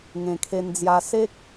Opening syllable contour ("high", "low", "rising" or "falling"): low